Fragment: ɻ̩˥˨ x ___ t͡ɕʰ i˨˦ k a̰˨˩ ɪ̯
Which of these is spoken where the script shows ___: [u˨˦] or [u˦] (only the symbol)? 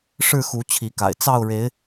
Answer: u˨˦